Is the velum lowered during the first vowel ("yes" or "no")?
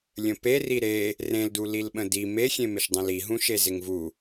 yes